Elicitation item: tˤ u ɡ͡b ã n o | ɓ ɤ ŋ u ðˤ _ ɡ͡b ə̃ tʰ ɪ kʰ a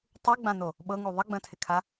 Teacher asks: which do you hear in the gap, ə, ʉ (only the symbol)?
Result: ə